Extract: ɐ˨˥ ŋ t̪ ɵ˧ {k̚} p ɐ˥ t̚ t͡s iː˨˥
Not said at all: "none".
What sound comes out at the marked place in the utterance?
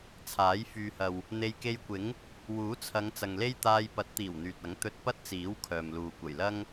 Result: t̚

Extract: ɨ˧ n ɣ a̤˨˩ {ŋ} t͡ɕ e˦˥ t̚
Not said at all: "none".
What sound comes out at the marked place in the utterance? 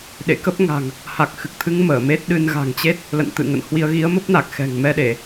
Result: ŋ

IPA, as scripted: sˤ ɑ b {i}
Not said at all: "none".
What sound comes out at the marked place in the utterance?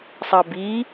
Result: i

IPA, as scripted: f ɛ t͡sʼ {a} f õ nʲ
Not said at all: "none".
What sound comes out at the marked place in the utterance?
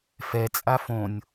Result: a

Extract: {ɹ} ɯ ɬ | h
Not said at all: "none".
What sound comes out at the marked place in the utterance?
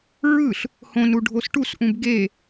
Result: ɹ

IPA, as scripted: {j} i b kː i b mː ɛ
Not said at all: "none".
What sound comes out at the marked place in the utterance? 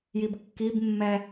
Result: j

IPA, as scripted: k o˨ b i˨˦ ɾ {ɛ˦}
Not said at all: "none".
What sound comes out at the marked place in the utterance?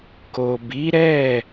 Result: ɛ˦˨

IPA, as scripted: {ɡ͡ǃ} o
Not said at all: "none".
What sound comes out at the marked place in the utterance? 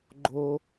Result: ɡ͡ǃ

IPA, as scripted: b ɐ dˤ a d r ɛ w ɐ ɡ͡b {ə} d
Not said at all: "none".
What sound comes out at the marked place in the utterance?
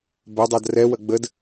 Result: ə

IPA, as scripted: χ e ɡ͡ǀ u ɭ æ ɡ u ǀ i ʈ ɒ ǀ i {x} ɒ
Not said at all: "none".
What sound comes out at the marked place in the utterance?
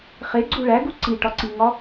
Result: ŋ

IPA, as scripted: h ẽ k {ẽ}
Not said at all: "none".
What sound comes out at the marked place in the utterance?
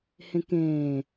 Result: ẽː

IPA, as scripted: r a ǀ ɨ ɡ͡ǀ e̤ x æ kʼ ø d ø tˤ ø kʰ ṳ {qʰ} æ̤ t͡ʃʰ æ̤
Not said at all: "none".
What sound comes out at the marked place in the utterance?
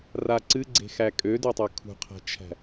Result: qʰ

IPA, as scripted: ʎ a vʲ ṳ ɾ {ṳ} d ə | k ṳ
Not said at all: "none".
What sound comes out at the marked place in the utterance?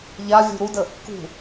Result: u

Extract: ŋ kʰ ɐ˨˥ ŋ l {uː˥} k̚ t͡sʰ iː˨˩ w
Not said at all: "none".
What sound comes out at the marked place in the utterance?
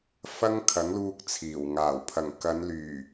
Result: uː˧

